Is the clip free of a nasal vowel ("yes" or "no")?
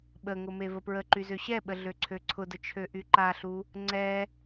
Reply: yes